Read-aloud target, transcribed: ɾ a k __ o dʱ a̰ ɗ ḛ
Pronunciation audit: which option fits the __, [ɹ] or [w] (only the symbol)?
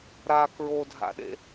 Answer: ɹ